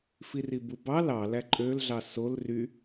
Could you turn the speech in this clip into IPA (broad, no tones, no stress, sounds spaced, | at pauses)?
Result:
f i r i b u b ɑ l ɑ l æ ǃʼ ø l ɮ ɑ s o l r y